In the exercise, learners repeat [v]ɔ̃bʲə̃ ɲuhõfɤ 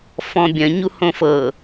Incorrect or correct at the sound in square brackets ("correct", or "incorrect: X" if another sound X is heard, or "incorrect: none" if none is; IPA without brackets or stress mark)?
incorrect: f